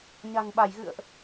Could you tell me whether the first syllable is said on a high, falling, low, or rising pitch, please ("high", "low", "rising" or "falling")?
low